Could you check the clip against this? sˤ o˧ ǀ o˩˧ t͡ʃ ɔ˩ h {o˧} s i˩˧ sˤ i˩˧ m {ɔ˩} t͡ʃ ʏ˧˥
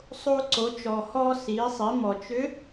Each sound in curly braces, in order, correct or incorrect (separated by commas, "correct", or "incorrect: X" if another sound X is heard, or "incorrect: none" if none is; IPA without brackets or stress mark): incorrect: ɔ˧, correct